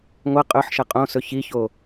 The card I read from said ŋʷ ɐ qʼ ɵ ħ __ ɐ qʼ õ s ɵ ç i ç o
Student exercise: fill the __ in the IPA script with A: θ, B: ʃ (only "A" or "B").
B